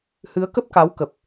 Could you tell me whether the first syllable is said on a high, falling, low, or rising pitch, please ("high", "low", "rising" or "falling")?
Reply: rising